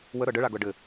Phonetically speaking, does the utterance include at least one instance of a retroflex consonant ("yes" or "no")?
yes